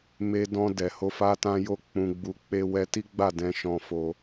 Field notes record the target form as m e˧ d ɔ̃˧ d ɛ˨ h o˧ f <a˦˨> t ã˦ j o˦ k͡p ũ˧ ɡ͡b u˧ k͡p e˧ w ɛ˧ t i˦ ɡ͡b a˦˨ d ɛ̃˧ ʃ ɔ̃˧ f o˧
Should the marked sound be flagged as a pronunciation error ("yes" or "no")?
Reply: yes